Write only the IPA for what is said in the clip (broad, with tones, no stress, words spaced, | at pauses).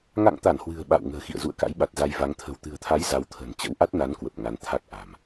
ŋa̰˧˨ŋt̪a˧˩n hwɨ̤˨˩ə̯ ɓa̰˧˨w ŋə̤ː˨˩xḭ˧˨ə̯zṵ˧˨ə̯ka̰˧˥j ɓa˨˩t̚za˧jva˨˦ŋ t̪ʰə̤˨˩wt̪ɨ̤˨˩ə̯t̪ʰa˨˦j za˨˦wt̪ʰə̤˨˩n t͡ɕə̰˧˥wʔa˦˥t̚na˨˦n kwə˨˩p̚ ŋa˨˦n t̪ʰa˦˥k̚ʔa̤˨˩m